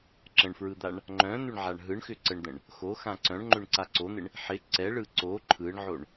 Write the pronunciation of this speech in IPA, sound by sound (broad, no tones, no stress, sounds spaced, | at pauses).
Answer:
ǁ ə̃ ɳ f ɹ ɯ d̪ a ɳ | ŋ͡ǃ œ̃ n̪ ʏ ɳ ʕ a ɳ ɦ ɯ ɳ x ʏ ǀ ə ɳ d̪ ə̃ ɳ | x o x ã ǀ œ̃ ɳ ŋ͡ǃ ʏ ɳ ǀ a ǀ o n̪ ɪ ɳ | ħ ɪ ǀ ɛ ɭ ɯ ǀ o ǃʰ ɯ ɳ ʕ o ɳ